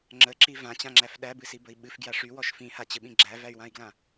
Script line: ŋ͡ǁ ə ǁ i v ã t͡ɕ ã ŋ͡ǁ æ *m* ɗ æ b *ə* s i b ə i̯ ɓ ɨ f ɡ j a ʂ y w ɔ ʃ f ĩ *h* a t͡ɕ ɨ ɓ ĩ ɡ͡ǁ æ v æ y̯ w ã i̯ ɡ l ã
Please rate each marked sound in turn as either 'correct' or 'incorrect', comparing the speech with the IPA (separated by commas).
incorrect, incorrect, correct